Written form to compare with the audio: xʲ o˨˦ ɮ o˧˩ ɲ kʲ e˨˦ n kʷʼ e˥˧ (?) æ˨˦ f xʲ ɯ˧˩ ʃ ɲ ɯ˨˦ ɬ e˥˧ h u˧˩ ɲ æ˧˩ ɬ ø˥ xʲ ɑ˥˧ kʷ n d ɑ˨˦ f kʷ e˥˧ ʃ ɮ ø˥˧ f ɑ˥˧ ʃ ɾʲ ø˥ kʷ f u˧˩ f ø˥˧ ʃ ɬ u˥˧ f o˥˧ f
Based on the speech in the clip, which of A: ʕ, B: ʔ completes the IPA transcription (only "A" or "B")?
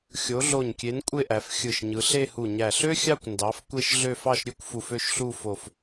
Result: B